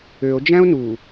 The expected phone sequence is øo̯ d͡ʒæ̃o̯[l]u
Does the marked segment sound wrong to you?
yes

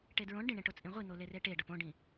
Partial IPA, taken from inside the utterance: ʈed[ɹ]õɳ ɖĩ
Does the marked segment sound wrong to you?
no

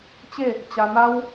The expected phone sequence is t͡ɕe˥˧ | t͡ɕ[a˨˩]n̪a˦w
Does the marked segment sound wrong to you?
yes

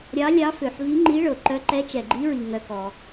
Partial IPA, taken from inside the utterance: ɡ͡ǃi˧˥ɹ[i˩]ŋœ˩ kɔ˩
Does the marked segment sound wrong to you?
no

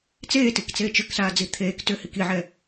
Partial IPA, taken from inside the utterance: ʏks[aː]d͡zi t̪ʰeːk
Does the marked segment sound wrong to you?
no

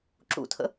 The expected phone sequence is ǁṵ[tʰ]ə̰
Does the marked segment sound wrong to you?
no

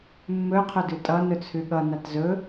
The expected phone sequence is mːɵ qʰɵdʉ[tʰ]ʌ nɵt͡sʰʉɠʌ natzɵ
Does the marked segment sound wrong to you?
yes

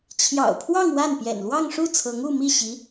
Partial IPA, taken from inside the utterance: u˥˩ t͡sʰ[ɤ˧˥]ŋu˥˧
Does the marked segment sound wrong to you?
no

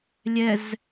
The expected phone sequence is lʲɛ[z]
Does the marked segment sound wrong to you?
no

